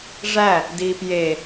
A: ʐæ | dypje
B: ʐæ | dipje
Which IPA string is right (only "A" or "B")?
B